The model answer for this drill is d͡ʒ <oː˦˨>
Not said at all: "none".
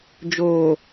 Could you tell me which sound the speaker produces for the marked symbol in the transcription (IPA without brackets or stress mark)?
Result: oː˨